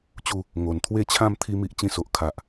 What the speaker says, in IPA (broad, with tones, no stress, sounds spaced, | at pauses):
t͡ɕ u˥˧ | ŋ o˨˩ n t̪ʰ w e˥˧ t͡ɕʰ ã˥˧ m t̪ʰ i˦ m i˦ ʔ t͡ɕ ĩ˥˧ s o˨ ʔ kʰ a˨ ʔ